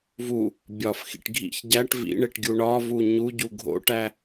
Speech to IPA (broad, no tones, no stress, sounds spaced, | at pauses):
v u | bʲ ɒ f x ḭ ʈ ɡʱ ḭ ç ɟ æ ʈ v ḭ ɳ e ʈ ɡʲ u ɳ ɒ v u ɲ u ɟ u ɡʱ o̰ ʈ æ